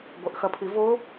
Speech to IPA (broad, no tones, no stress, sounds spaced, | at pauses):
ɡʷ ɐ ʔ x ɐ pʰ i v o